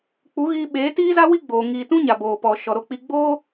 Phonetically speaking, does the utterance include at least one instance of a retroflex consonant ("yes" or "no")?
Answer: no